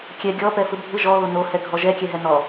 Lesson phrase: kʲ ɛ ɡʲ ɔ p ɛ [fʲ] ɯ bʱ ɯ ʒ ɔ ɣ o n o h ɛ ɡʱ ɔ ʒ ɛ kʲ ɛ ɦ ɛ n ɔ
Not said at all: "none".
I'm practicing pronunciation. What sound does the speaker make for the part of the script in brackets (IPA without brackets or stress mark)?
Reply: f